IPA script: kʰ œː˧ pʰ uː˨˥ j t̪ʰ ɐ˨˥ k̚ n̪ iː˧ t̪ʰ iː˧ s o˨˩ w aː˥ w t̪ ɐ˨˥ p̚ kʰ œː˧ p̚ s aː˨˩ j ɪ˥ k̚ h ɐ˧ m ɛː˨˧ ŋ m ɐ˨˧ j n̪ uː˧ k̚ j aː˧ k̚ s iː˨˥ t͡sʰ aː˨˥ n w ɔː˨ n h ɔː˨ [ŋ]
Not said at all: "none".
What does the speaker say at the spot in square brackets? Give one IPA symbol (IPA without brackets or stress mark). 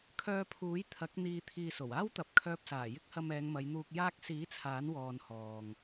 ŋ